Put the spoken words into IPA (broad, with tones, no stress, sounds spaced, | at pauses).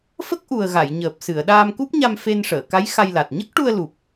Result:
f ə˦˥ k̚ ʔ u˨˩ ə̯ ɣ a˨˩˨ j ɲ əː˨˩ p̚ s ɨ˨˩˨ ə̯ ɗ aː˧ m k u˦˥ p̚ ɲ a˧ m f e˧ n ʂ əː˨˩˨ k a˧˥ j x a˧ j l a˨˩ t̚ ɲ ə˦˥ k̚ ʈ u˧ ə̯ l u˨˩ p̚